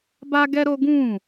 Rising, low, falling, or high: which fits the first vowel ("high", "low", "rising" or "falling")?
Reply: high